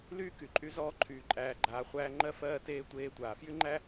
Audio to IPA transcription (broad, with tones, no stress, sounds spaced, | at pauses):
l yː˥ k y˨ ǃʼ y˥ z ɔː˦ ǃʰ yː˨ ǃʼ æː˨ ɡ͡ǃ aː˨ χʷ æː˦ ŋ͡ǃ ɜ˥ f ɜː˦ t eː˥ tʷ eː˦ tʷ aː˩ f j y˥ ŋ͡ǃ æ˥